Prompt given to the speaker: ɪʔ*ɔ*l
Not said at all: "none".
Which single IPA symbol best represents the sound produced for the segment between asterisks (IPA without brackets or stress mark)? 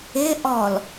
ɔ